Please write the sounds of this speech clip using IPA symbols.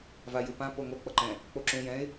vajɯpã poŋo k͡pʌǃɛ̃ | k͡poǁũ jɛ̃ɪ̯

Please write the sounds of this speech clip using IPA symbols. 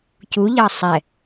cuʎɑ sˤɛ

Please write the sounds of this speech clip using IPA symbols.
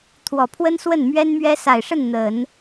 t̪ʰwɔ˨˩pʰwə˥n swə˥˩n mɥɛ˥nmɥɛ˥ sa˨˩ɪ̯ʂə˥˩n n̪ə˨˩˦n

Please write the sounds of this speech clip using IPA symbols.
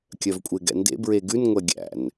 kʲœvkʷʼeɡɛ̰ndḛ bɹeɡʉn ŋʷɛɡʲæ̰n

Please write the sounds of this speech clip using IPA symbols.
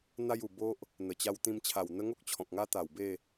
n̪a˦ju˨˩bo˦ʔ | n̪ə˨˩t͡ɕa˧wt̪ĩ˧m t͡ɕʰa˨˩wn̪ə˦ ŋo˦k̚t͡ɕʰɔ̃˨k̚ŋa˦ t̪a˨˩w be˥˧

